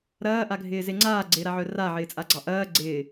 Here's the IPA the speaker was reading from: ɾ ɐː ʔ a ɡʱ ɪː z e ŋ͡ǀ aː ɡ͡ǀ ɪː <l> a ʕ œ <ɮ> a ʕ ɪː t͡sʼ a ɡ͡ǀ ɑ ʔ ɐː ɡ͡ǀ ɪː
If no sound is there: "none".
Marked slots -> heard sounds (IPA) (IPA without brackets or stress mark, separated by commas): ɾ, r